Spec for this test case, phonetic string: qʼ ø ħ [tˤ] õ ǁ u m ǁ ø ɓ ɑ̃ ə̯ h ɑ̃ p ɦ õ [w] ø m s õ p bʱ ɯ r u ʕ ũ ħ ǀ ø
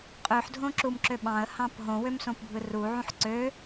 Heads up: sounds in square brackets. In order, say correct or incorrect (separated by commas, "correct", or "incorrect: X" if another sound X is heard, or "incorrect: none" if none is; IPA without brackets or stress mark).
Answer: incorrect: dʱ, correct